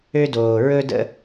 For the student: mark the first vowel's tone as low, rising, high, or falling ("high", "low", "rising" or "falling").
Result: high